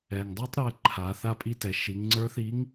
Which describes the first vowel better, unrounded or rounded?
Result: unrounded